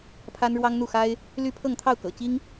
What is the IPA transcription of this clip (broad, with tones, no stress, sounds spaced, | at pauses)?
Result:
pʰ a˥ n ɻ w ɑ˥ ŋ n̪ u˥˩ x a˥ ɪ̯ | l y˥ pʰ ɤ˥˧ ŋ t̪ʰ ɑ˥˩ ʊ̯ k ɤ̰˨˩ t͡ɕ i˥ ŋ